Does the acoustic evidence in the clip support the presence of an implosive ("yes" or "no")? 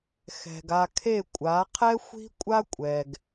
no